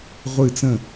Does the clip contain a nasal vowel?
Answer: yes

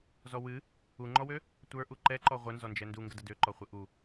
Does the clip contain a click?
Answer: yes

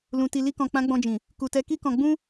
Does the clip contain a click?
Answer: no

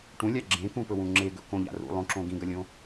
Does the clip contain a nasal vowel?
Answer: yes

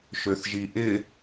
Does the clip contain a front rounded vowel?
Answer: yes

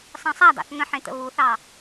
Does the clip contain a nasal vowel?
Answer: yes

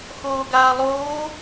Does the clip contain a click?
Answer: no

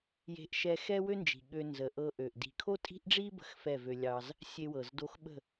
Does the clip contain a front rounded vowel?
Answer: yes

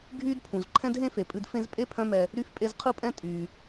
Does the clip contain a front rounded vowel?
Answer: yes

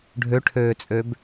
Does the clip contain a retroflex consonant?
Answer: yes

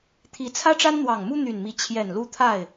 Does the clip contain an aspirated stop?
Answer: yes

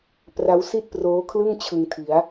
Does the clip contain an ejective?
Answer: no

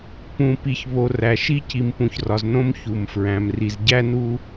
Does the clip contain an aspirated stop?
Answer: no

